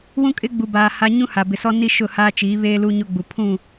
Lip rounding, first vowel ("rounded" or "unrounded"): rounded